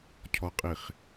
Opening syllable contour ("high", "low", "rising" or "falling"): low